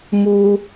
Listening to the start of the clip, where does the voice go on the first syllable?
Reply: high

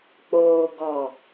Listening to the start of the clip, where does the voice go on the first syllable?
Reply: low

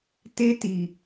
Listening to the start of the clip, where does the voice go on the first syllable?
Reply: high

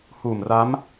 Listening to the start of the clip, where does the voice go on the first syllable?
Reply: low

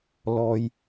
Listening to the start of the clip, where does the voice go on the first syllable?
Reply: low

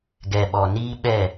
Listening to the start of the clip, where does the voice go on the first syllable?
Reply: low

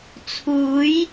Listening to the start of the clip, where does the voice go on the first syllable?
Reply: rising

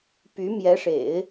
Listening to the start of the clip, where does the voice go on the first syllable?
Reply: rising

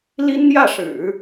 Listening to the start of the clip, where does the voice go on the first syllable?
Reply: high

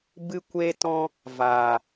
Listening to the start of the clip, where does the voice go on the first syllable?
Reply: high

